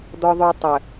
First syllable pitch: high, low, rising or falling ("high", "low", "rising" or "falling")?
high